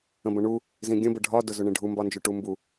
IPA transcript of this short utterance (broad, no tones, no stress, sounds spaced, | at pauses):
ə̃ b ə̃ ɳ u | z ĩ ɡʲ ə̃ b ə ɖʱ ɒ d ʊ z ʊ ɳ ĩ ɖʱ u m b ɒ n d͡ʒ ʊ ʈ u m b u